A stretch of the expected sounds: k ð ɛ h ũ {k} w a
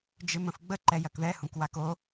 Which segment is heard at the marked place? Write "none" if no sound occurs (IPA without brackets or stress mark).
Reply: k